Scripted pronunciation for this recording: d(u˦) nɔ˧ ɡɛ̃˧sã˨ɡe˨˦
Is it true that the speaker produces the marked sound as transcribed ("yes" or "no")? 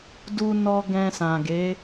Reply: no